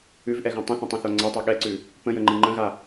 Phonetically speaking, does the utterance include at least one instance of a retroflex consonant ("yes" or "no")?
no